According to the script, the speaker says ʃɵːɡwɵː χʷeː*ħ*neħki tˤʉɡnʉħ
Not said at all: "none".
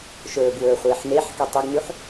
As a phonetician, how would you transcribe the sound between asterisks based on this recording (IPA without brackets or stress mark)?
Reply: ħ